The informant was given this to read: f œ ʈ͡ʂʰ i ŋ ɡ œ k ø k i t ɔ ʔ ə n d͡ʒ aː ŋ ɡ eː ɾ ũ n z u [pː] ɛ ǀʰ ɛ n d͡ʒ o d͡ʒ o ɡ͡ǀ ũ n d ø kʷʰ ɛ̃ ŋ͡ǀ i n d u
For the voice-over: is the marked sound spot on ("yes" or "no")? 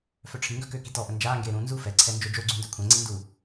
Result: no